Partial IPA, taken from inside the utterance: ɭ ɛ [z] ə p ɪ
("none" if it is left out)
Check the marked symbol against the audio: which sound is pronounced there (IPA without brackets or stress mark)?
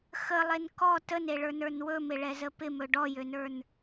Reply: z